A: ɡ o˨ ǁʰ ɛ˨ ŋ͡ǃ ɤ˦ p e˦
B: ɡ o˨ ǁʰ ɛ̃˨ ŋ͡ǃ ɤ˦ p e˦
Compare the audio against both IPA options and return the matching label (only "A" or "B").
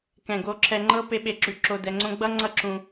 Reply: A